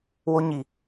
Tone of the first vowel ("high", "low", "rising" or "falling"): high